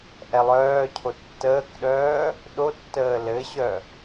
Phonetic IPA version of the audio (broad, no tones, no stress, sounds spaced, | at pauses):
ʔ ɛ lˠ œː cʰ o tː əː k ɗ œː | ɗ o tː əː l ɘ ɕ œ